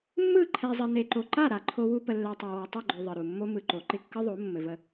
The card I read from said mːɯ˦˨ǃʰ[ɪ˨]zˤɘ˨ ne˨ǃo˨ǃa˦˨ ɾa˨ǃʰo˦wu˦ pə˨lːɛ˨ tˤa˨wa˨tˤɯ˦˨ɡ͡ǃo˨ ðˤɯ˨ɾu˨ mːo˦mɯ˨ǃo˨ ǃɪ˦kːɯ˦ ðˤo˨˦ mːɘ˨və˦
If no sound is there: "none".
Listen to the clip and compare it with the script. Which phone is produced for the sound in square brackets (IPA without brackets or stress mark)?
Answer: ɛ˨